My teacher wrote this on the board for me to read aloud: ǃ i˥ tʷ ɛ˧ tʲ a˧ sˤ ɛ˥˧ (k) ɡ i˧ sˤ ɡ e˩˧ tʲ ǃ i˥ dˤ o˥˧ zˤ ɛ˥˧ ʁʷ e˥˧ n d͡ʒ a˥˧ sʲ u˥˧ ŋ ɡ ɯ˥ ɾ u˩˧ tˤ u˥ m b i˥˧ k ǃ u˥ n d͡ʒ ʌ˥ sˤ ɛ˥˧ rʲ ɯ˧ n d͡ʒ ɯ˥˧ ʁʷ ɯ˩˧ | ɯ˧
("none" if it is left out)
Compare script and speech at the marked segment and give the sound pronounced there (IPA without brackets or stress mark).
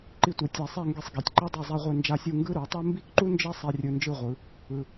ŋ